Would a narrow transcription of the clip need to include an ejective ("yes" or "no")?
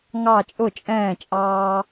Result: yes